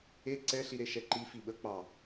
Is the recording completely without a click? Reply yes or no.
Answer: no